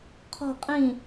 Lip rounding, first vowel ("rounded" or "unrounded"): rounded